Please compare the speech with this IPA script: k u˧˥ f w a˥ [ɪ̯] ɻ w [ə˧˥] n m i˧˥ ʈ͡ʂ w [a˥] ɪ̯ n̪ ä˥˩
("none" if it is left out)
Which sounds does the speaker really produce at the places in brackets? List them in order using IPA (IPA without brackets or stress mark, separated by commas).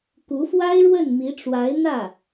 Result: ɪ̯, ə˥˩, a˧˥